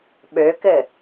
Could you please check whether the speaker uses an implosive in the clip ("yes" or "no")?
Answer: yes